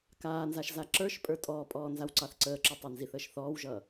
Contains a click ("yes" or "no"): yes